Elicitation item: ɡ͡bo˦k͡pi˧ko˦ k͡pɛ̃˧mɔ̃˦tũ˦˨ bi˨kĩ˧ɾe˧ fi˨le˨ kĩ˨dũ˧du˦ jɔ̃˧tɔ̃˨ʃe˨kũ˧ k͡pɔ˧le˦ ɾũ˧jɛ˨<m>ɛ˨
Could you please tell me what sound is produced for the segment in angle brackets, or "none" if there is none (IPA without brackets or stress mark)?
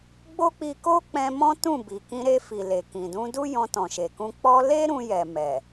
m